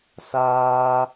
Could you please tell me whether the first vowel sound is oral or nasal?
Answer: oral